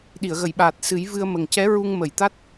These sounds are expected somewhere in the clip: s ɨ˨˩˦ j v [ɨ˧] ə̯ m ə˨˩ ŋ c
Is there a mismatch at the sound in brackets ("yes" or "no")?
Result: no